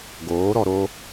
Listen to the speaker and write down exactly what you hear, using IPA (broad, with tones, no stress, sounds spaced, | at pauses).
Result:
ɡ oː˨˦ ɾ ɔ˧ ɾ o˦